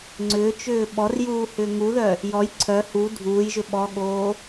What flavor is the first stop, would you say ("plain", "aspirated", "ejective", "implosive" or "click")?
click